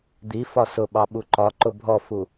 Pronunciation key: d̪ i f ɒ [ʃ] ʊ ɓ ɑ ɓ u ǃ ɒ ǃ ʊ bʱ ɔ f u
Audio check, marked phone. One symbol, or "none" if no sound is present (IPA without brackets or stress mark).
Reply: s